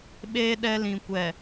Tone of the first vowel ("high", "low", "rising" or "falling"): high